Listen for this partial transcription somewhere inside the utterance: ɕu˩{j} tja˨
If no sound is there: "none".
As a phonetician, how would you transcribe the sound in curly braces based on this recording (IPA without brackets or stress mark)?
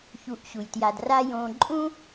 j